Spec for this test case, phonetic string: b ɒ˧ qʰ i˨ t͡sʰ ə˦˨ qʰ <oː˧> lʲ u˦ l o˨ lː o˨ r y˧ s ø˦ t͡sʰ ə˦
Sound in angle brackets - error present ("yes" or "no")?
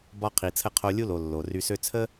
yes